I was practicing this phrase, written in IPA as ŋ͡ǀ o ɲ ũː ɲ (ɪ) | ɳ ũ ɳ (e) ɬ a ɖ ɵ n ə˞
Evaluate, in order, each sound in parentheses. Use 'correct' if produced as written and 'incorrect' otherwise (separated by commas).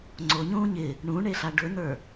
correct, correct